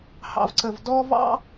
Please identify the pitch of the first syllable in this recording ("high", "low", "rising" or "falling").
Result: low